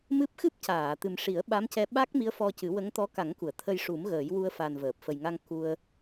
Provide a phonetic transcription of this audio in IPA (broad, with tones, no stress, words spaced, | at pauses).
mɨ˦˥p̚ xɨ˦˥p̚caː˨˩˨t̪ɨ˨˩m ʂi˨˩˦ə̯ɓa˧˥mcɛ˧ ɓa˦˥k̚ mi˧˥ə̯fɔ˧cɨ˨˩˦wə˧˥ŋ t̪ɔ˧˥ka˨˩˦ŋku˨˩˨ə̯ t̪ʰə˧jʂu˨˩˦m ɣəː˨˩˦jwu˧ə̯fa˨˩n vəː˨˩p̚ fə˨˩jŋa˧ŋ ku˧ə̯